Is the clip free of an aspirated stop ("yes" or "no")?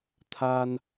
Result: no